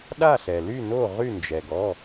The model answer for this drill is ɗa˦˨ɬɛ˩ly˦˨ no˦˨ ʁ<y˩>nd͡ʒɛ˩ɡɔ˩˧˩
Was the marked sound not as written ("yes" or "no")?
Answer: yes